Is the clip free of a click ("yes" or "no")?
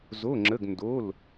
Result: no